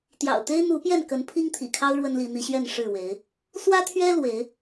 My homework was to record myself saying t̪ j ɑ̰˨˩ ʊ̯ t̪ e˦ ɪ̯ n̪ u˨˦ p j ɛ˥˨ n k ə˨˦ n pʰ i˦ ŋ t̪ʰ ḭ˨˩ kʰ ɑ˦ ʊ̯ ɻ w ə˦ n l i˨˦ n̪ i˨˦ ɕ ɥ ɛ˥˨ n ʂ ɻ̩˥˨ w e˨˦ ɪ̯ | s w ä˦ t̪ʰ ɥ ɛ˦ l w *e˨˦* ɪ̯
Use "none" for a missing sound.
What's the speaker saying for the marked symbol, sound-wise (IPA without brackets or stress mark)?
e˨˦